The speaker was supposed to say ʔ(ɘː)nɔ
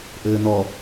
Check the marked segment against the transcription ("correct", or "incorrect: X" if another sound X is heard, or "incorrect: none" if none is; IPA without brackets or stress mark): correct